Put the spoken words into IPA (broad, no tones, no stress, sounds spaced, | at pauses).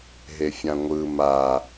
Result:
ɦ e fʲ ã ŋʷ ɯ m a